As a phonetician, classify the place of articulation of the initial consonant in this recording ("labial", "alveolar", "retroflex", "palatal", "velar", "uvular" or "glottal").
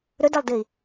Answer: alveolar